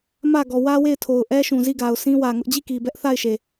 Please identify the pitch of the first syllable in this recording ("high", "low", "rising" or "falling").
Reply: falling